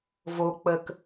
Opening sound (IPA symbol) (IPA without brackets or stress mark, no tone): v